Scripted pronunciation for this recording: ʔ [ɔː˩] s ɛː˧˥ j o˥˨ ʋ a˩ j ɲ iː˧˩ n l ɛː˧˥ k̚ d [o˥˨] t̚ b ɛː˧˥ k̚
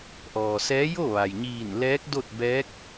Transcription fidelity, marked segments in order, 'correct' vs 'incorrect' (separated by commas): correct, correct